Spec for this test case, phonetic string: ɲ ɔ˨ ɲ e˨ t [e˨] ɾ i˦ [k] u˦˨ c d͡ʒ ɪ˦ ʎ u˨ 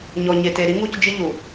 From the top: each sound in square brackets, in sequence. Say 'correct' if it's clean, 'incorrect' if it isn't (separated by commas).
correct, incorrect